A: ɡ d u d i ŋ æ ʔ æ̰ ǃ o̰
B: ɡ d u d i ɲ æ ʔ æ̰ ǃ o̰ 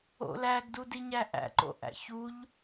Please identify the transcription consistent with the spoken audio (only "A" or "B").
B